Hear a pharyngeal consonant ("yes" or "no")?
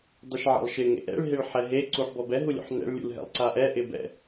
yes